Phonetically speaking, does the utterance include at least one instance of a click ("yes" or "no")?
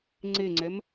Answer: yes